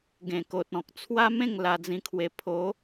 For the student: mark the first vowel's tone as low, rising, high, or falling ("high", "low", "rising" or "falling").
low